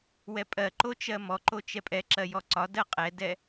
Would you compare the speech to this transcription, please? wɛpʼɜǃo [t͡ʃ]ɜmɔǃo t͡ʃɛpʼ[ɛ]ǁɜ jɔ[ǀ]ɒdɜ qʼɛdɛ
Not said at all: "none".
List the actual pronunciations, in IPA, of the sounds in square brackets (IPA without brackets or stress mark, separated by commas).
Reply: t͡ʃ, ɛ, ǀ